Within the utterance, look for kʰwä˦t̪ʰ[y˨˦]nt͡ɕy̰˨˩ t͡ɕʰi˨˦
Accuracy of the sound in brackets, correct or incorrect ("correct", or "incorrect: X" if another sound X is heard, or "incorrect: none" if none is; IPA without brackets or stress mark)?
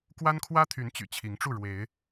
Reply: correct